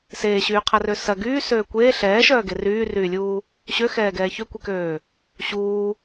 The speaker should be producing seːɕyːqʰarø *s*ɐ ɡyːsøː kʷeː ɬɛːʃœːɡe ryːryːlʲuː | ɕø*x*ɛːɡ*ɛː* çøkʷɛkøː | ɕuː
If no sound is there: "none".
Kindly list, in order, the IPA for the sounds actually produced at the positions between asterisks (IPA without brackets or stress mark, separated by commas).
s, x, ɛː